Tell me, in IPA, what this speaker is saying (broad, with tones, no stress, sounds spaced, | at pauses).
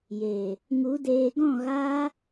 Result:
j eː˨ | ŋ u˨˦ d eː˧ ɡ ɔ̃˦˨ ɣ aː˦